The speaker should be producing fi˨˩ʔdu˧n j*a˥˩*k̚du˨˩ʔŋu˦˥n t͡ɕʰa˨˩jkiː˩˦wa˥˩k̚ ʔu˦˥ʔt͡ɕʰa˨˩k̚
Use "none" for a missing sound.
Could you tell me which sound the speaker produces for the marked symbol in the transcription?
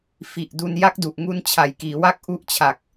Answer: a˦˥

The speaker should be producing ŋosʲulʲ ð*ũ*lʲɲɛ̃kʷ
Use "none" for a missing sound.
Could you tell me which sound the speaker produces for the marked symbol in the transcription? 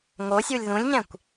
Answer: ũ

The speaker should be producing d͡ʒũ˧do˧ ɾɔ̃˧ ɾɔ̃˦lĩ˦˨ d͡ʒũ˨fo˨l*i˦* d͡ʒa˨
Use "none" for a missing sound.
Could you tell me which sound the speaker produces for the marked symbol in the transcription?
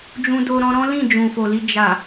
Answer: i˧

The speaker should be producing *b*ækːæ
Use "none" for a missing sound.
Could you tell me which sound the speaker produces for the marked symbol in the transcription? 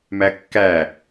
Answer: m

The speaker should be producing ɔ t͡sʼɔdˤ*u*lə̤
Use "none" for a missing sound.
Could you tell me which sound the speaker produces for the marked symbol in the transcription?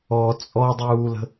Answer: uː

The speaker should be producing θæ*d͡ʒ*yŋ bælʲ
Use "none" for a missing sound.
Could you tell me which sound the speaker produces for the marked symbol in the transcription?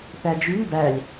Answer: d͡ʒ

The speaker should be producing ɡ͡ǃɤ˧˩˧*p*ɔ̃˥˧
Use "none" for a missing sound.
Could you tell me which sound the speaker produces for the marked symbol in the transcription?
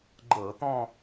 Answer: t̪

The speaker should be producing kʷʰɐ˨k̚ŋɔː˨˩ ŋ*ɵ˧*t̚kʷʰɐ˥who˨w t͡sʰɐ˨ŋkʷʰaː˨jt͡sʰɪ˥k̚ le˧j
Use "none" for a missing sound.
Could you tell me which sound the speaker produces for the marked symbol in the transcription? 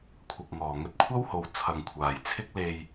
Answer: ɵ˧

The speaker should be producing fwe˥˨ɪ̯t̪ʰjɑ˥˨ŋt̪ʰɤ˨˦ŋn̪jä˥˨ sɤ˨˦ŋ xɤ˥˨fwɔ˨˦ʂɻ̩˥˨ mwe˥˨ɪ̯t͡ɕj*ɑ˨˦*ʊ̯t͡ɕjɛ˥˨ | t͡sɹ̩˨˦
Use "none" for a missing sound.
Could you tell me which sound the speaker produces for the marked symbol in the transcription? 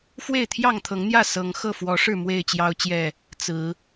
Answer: ɑ˦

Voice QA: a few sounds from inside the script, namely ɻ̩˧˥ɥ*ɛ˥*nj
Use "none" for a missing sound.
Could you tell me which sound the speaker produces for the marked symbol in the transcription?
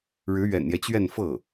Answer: ɛ̰˨˩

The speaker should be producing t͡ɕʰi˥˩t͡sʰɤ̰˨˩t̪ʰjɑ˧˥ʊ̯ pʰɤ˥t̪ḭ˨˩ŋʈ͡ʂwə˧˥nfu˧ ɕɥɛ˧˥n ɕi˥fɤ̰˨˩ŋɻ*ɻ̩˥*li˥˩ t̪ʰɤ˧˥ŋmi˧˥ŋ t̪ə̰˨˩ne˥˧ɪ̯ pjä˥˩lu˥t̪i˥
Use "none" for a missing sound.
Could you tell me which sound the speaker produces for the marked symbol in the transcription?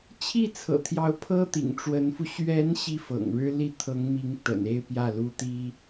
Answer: ɻ̩˥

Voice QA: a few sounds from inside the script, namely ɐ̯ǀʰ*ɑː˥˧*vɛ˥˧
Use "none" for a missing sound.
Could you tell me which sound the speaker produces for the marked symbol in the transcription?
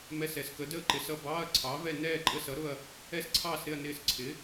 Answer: ɑː˨˥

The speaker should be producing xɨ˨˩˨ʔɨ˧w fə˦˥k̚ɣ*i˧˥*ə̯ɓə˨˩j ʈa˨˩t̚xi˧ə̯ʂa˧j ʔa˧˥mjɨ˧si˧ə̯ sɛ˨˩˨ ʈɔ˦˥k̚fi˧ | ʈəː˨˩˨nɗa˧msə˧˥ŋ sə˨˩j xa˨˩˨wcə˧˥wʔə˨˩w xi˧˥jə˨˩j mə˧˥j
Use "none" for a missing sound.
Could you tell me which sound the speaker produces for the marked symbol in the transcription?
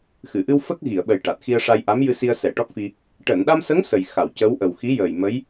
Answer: i˨˩˨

